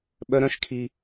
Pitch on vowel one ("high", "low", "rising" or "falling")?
high